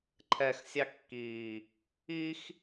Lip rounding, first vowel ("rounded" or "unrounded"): unrounded